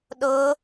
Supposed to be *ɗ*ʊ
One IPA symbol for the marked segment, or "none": ɗ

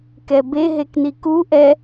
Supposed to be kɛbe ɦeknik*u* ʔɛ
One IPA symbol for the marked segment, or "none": u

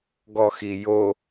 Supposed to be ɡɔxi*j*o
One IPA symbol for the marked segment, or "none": j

